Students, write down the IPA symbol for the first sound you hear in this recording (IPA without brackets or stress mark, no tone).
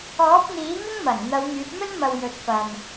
ɔː